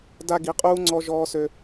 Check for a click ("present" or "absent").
present